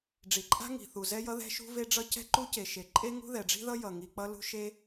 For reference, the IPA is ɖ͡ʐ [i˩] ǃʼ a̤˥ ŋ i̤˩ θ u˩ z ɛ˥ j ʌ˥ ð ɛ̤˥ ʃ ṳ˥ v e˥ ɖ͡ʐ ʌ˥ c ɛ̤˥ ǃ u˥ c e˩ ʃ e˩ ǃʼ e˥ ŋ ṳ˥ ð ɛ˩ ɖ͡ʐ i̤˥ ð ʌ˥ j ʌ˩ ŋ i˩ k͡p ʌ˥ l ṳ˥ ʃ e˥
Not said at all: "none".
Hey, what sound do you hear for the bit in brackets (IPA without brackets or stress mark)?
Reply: i˩